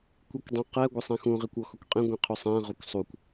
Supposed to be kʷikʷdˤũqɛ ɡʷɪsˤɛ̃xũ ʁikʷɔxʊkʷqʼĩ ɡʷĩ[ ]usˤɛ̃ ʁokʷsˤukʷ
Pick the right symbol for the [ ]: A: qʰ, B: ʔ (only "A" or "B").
A